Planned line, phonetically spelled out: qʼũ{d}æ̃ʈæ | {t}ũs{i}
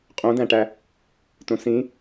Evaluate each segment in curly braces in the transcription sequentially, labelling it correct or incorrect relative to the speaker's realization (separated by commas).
correct, correct, incorrect